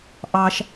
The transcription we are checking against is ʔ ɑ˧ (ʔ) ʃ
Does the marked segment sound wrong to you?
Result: yes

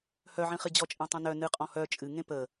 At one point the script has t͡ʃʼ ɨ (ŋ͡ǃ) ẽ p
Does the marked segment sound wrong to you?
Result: yes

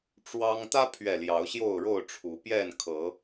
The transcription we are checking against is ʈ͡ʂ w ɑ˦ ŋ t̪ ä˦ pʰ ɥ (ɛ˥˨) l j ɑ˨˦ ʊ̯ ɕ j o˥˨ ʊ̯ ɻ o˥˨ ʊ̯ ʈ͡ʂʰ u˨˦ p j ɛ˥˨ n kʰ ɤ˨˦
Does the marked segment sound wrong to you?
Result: yes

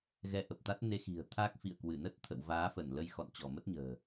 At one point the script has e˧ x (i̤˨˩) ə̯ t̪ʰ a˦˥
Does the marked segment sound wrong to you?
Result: no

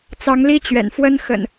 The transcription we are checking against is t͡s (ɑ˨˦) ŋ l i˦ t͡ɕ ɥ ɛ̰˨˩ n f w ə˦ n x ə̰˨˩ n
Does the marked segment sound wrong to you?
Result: no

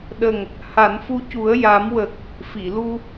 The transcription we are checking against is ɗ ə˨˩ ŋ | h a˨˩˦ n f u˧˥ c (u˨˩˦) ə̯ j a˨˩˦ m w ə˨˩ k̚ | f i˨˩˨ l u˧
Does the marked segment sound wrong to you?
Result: no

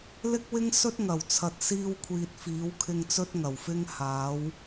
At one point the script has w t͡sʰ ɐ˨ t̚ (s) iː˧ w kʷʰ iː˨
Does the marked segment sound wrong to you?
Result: no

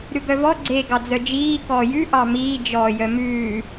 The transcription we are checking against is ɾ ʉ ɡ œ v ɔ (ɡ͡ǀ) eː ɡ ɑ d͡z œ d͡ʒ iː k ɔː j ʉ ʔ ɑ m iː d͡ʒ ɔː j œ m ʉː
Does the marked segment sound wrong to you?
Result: no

